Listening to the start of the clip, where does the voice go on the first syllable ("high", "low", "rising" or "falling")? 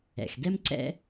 low